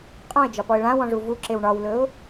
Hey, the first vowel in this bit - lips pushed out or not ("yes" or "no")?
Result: yes